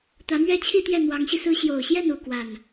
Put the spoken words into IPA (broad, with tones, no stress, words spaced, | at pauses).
t̪ä˧˥mɥɛ˥t͡ɕʰi˥˧t̪jɛ˥˩ n̪wɑ˧˥ŋɕi˧sɹ̩˥ ɕjo˨˩ʊ̯ɕjɛ˥˩nu˨˩ kwa˥˩n